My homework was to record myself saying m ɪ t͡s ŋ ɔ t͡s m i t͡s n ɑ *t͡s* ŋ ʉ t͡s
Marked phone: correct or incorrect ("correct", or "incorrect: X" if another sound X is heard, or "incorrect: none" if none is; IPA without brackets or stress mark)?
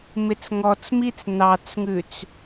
correct